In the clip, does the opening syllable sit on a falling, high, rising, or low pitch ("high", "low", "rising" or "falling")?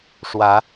rising